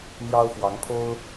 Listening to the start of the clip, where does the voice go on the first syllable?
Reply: high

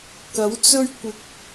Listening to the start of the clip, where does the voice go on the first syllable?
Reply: rising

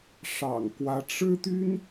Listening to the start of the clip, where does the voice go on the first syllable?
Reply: low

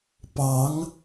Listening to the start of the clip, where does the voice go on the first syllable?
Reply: rising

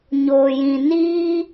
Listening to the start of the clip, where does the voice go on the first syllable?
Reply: low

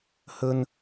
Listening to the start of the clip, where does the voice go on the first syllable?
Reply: high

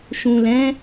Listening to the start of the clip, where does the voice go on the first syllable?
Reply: low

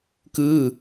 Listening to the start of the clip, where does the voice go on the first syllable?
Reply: falling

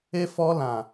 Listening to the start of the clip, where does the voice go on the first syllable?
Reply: high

